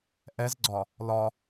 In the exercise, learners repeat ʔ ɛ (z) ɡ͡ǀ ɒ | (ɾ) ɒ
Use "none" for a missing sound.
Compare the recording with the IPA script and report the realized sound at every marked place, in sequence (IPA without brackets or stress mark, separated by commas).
z, l